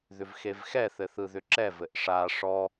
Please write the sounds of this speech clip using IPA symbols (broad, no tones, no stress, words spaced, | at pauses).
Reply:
ðʏvxevxɛθɘ θɯðʏǁɛvɘʔ ʂa ʂɔ